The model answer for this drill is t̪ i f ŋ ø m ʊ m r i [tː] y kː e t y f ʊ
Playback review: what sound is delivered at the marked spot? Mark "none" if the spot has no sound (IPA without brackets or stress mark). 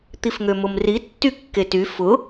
tː